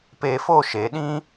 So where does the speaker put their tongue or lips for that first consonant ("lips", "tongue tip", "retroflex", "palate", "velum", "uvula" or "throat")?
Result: lips